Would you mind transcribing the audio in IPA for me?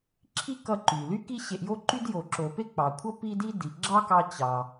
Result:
ǁʰ i˥ k ʌ˧ ǃ y˩ l y˥ k i˥ ɕ e˧ ʔ j o˥ ǃ y˥ d j o˩ ǁ o˩ p e˥ k͡p ɑ˩ kʷʰ ʌ˥ p i˥ d i˥ d i˩ ɡ͡ǁ ɑ˥ k ɑ˧ t͡ɕ ɑ˩

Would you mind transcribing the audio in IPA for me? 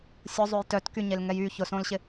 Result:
sʲ ʊ zˤ ø j t œ t k y ɲ e l ŋ ɛ j y ç ʊ s õ l ɕ ɪ

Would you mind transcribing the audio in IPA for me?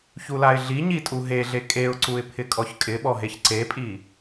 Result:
ç u l a ɪ̯ ɮ i ɲ i tʼ u ɦ e ɮ e kʼ e ʊ̯ ǀ u ɪ̯ pʰ ɪ kʼ ɔ ç kʼ ɪ ɓ ɔ ɦ e ç ǀ e pʼ i

